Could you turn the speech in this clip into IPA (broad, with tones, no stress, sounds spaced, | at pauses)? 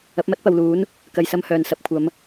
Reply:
ɐ˨˥ p̚ m ɐ˥ t̚ p ɐ˨ w l uː˨˥ n | k ɐ˧ j s ɐ˥ m h œː˨ n s ɐ˧ p̚ kʷʰ ɐ˨˧ m